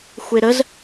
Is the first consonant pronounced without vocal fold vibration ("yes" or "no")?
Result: yes